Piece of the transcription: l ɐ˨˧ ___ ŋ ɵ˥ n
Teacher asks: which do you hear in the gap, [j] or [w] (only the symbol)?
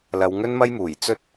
w